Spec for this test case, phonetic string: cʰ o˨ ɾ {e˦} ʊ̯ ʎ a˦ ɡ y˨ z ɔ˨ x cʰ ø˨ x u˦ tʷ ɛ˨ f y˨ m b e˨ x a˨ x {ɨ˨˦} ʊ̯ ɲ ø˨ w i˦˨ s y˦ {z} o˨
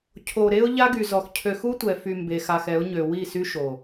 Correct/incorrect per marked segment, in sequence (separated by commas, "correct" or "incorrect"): correct, incorrect, incorrect